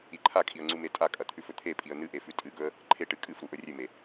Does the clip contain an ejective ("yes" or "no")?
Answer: yes